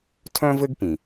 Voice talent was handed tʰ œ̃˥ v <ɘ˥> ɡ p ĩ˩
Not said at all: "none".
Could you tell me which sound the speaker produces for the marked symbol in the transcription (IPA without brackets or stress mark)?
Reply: ɘ˥